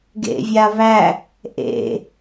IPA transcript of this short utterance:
ɡ ḛ vʲ a β æ | ʔ ḛ

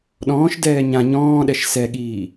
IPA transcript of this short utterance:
ɗ ɔ̃ː ʃ d ɛː ɲ ã ɲ ɔ̃ː ɗ ɛ ʃ s ɛ ɠ iː

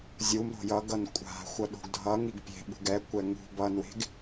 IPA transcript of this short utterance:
zʲ u m ɾ o̤ j ʌ ɡ ʌ n kʷʼ a̤ xʷ ʌ ɗ o̤ ɡ dʱ ʌ ŋ i ɡ pʲ e̤ ɓ ṳ ɡ ɛ kʷ ɛ ŋ ṳ b ʌ n w e̤ ɡ

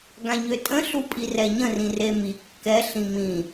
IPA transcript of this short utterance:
ɡ ã ɲ ø tʼ ə̃ ɬ u pʼ i r ɛ ɲ ə̃ r ĩ r e m i kː ɛ ɬ ĩ m ĩ

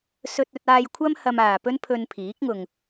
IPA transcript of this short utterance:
s ɵ˧ t̚ ɵ˧ t̚ aː˧ j kʷʰ ɐ˥ m h ɐ˧ m aː˨ p ɵ˥ n pʰ ɵ˧ n pʰ iː˨˥ k̚ ŋ ʊ˨ ŋ

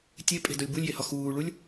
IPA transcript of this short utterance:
tʲ e pʼ e̤ d o lʲ b u lʲ j e h ɒ x uː ɭ u lʲ

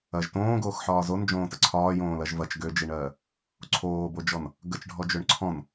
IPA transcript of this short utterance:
ɐ ʒ t õː ɡ oː x ħ ɒː z o n d͡ʒ õː t ə ǀʰ ɒː j õː l ɐ ʒ v ɐ t͡ʃ ɡ ø d͡ʒ i ɳ ɜː | ǀʰ oː b o d͡ʒ ɔ n | ɡ ə t͡ʃ ɖʱ ɔ d͡ʒ ø ɳ ǀʰ ɔ̃ n

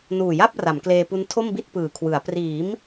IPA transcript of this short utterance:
n uː˨˩ j a˥˩ p̚ r a˩˦ m k l eː˧ p u˦˥ n tʰ o˥˩ m b i˥˩ t̚ p ɯː˨˩ kʰ w ɯ˩˦ a̯ p r iː˩˦ m

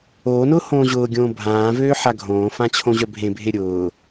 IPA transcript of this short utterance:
oː n ʊː h õː ʑ ʊː ɡʲ õː bʱ ãː v øː ħ a ɡʱ õː f ã t͡ɕʰ õ ʑ œ bʱ ẽ bʱ e ɾʲ ʊː

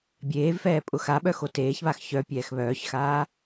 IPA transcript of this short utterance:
bʲ eː v f ɛː pʼ ʊ x a ɓ œ x o t eː ç β a x ç œ pʲ ɛː x β œː ç x aː

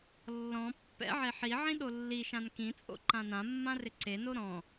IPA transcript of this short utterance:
lː ɔ̃ pː ɛ̰ ʕ e ħ i ʕ ĩ ɗ o lː i ʃ ã n k ĩ t͡sʼ o̰ ǃ ã n ã mː ã r ɪ ǀ e n o ɾ ɔ̃

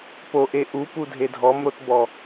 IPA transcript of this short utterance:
p o ʔ e ʔ u p u dʱ e dʱ ɔ m ɾ o t b ɔ

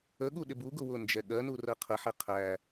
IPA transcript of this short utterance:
ə ɠ u ɗ ɪ b u ɡ ʊ w ʊ n d͡ʒ ɛ ɠ ɜ n u r ɜ qʰ ə ħ ɛ qʰ æ

